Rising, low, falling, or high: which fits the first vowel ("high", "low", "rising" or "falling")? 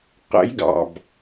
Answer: rising